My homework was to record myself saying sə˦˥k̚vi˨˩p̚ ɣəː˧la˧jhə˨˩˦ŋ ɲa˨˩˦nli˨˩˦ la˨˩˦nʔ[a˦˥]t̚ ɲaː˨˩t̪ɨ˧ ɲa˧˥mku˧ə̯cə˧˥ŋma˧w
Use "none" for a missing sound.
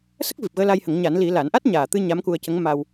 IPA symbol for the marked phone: a˦˥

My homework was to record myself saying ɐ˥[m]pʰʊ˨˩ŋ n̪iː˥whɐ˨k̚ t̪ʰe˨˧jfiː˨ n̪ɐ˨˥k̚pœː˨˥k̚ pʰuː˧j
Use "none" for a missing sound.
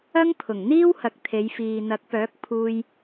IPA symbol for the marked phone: ŋ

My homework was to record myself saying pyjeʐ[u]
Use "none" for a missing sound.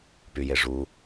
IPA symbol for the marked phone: u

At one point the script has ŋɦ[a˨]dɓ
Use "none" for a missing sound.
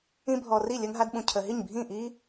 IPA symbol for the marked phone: a˦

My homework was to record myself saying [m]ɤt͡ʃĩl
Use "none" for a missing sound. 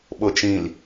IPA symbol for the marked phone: ɓ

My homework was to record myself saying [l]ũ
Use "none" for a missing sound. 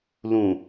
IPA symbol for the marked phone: l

